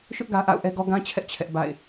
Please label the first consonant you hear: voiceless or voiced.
voiceless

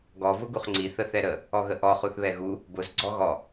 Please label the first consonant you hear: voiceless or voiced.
voiced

